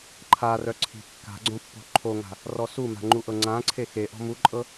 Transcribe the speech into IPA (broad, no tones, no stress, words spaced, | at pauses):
ǃʰa rœǀʰi̤ kːa̤ɡ͡ǀõpːo̤ ǃʰoŋa̤ | rɔsuma̤ ŋ͡ǃuʔɤŋ͡ǀã ǀʰexeʔɔ̤ muǃʼɤ